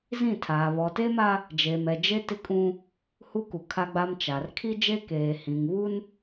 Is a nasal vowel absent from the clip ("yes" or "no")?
no